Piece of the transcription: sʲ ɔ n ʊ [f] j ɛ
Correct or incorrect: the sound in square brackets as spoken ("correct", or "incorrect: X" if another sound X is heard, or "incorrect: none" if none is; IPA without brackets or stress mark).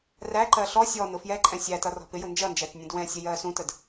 correct